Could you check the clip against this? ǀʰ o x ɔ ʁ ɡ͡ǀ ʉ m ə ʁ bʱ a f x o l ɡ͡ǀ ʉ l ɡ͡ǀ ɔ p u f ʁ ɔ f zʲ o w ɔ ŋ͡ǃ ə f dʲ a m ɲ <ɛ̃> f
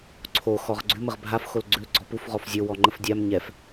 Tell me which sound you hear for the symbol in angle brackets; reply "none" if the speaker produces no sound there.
ɛ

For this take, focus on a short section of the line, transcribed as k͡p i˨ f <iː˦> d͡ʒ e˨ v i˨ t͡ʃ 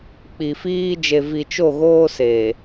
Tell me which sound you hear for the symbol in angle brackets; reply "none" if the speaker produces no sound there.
iː˦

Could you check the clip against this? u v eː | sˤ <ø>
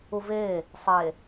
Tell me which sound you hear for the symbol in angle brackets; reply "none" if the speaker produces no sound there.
e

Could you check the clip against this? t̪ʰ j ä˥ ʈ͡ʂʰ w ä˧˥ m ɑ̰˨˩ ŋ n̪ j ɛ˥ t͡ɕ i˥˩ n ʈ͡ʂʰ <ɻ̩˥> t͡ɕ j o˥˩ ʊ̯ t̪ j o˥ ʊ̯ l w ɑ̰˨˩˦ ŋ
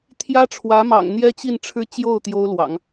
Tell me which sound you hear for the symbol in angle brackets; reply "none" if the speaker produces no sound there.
ɻ̩˥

